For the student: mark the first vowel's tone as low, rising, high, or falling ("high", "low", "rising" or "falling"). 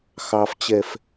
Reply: low